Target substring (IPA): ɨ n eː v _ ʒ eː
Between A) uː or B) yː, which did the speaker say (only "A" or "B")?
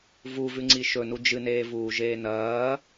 A